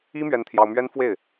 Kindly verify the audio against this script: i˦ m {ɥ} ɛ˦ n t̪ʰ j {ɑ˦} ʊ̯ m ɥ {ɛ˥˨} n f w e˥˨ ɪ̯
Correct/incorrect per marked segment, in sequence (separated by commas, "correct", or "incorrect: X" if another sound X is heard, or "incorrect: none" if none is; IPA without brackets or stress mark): correct, correct, incorrect: ɛ˦